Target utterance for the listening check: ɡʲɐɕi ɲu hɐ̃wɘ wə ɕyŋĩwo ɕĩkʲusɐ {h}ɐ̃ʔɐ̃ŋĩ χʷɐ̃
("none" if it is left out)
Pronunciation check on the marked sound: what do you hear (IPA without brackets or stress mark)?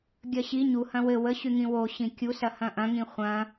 h